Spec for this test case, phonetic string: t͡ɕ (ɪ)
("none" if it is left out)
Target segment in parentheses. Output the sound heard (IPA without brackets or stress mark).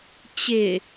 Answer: ɪ